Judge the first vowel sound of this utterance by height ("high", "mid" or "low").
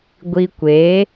high